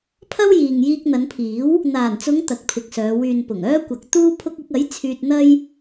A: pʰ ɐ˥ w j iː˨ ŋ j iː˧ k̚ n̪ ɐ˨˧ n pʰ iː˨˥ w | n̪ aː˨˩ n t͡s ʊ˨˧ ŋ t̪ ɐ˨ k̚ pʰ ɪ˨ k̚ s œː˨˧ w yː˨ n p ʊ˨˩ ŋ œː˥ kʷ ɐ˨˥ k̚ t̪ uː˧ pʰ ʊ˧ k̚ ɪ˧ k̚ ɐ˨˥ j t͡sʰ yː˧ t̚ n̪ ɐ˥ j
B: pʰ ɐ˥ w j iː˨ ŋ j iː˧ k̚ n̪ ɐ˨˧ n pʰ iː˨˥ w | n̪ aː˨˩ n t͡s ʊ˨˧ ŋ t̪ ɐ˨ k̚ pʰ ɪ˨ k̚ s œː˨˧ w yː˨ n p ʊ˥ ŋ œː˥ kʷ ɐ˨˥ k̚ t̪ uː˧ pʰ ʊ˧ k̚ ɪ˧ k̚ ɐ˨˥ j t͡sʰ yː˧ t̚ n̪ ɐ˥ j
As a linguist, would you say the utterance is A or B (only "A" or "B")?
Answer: A